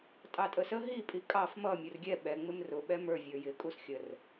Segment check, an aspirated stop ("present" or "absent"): absent